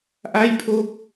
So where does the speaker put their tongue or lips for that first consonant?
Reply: throat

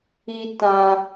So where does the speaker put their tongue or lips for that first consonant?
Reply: tongue tip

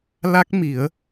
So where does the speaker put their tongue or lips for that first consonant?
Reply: tongue tip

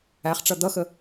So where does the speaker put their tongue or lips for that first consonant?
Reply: uvula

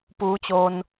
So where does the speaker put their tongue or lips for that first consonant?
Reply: lips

